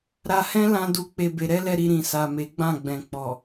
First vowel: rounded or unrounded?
unrounded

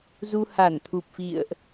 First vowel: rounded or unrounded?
rounded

